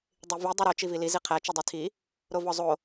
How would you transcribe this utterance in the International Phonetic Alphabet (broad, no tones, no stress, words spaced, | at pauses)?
dˤivi dˤuɾo t͡ʃivili ziqʰæ t͡ʃudˤitʰi | ɾovɒzˤo